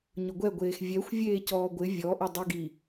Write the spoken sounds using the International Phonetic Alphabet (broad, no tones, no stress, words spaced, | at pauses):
ɲʊɡʷɛ ɡʷeːxvʲɛxʷvʲeː cɔːɡʷɪ vʲɔʔɪ dˤiɡi